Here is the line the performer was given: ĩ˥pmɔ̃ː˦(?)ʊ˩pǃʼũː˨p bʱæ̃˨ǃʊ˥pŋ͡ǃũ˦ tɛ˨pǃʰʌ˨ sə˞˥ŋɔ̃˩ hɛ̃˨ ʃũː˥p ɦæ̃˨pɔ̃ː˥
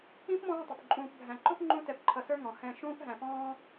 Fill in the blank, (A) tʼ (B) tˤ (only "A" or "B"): B